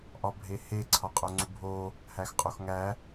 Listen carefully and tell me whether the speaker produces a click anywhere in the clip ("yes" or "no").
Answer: yes